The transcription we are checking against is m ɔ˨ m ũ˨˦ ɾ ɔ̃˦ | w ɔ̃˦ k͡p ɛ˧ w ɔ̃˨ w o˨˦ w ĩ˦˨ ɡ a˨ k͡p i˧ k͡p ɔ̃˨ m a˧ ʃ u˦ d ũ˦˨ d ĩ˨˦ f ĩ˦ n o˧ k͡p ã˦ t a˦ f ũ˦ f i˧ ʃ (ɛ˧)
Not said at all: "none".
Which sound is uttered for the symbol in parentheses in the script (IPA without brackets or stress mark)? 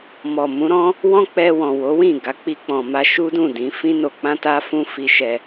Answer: ɛ˧